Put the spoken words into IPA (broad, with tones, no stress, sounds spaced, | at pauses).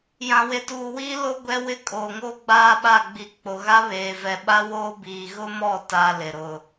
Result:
j ã˨ w e˨ t uː˨ w iː˦ l o˦ ɡʷ ɛ˦ w ɪ˦ kʼ oː˨ ŋ oː˦ ɡ͡b aː˦ ɓ a˦˨ ɡ͡b i˨ k͡p o˨ ɣ a˦ β eː˨ v ɛ˨ ɓ a˦ w oː˦ b iː˨ ɣ ʊ˦ m ɔ˦˨ t a˦ l ɪ˨ ɾ ʊ˨